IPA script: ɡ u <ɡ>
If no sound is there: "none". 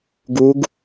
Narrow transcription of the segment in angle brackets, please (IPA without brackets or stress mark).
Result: ɡ